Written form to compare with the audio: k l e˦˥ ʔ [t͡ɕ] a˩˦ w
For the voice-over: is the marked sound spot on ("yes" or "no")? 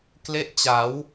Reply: yes